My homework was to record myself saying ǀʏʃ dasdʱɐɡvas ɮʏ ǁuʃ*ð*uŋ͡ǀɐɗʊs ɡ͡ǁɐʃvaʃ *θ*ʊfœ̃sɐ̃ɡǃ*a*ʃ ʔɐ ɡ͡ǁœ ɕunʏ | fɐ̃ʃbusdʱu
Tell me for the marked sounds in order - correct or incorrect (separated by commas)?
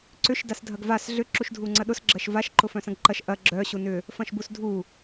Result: incorrect, incorrect, incorrect